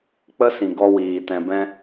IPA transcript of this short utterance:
k͡pə˦sĩ˨ ɡɔ˦wiː˨ tɛ̃˨ bɛ̃˧

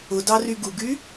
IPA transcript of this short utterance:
ʊdɑ ryɡuɡy

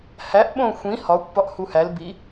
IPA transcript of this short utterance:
hæʔɓõ xʷĩ hɒkʷ pɒʔhuhæl bi

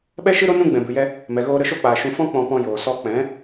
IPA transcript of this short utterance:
ɓɛ˦ʃɨ˦ɾo˦ nũ˧ ɡ͡bɛ̃˨bɨ˨jɛ˧ | mɛ˨ɣoː˧ ɾə˧ʃo˧k͡paː˨ ʃũ˧fɔ̃˦ k͡pɔ̃˧pɔ̃˧ joː˨sɔ˧ k͡pɛ̃˨˦

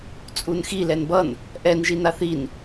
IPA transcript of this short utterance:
t͡sʼunxi lɛnbʌn | ʔɛn ʒinaθin

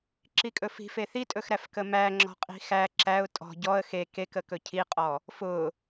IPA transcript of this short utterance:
ǁikʼɵfi̤ feθitʼɵxɾæf kəmæ ŋ͡ǁɔ̤qʼi̤xæ ǁæʊ̯ tʼɔ̤ ɟɔə̯ xe kek əkɵcʰiqʼɔ | fʊ

